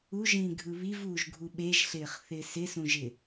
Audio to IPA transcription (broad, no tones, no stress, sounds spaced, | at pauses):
u ʒ ĩː ɡʱ ɯ β i v uː ʒ ɡʱ u ɓ e ʒ ɬ ɪː χ θ ɪː s ɪ s ũ ʒ ɪ